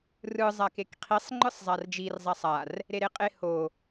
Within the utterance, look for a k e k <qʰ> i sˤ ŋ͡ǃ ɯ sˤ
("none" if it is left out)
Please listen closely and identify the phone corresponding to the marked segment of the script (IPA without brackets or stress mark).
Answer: qʰ